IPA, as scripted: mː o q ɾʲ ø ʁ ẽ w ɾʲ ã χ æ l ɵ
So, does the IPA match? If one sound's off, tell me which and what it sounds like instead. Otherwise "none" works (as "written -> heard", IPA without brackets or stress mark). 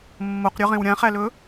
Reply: ø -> ɵ